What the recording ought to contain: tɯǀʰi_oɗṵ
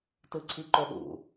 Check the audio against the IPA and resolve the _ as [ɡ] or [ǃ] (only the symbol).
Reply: ǃ